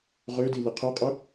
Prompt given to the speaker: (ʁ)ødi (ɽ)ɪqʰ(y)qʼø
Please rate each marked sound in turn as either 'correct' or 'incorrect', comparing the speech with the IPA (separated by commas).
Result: correct, incorrect, incorrect